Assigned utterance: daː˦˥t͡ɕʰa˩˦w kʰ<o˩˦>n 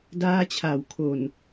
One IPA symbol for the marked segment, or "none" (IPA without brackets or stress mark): o˨˩